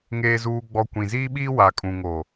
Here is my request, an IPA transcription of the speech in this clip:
ŋeː˨zuː˨ɡ͡bɔ˨ kʷĩ˨ziː˦ɓiː˦ wa˨kʼũ˨ŋo˨

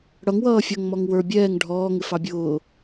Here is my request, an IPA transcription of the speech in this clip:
ɽʌŋwʌː fʲʌŋmɔŋ wə˞ bʲɛːŋ ɖʱɔː ŋɪfɑbʲʊː

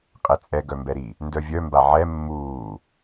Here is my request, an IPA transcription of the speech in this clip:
qʼet͡sʼɛ ɡœmbɛɾi | ndœvʲœ mbaʕɛ mːuː

